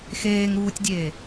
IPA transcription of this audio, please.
x eː ŋ ɾ uː tʲ dʲ eː

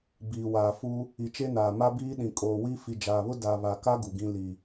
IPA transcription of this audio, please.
b iː˨ w aː˨ f u˦ | i˨ t͡ʃ e˦ n aː˨ m a˦ b iː˦ ɗ ĩ˨ kʼ oː˨ w i˦ f i˨ d͡ʒ aː˨ β ʊ˦ d a˨ β a˨ k a˦ ɡ u˨ ɡ ĩ˦ l i˨

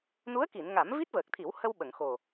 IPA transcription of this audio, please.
n u˧˥ ə̯ k i˨˩˨ n ŋ a˨˩˦ m v i˦˥ t̚ v əː˨˩ k̚ t̪ʰ i˨˩˦ w h ə˧ w ɓ ə˨˩˨ ŋ x o˨˩

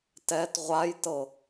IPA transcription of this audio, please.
t ɛ t ʁʷ a j t ɤ

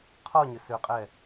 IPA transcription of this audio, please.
qʰ ɔ ɲ ʏ s ø qʼ ɛ

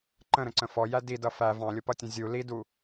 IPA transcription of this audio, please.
ǃ ə̃ ɾ ə̃ ǀ ə̃ f ɔ j æ d i d ʌ f æ v ɑ̃ lʲ ʊ p ʌ tʲ ə̃ zʲ u l i d u

